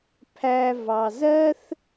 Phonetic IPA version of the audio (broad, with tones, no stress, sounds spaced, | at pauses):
pʰ æ˧ v ɑ˧ z ɜ˦ θ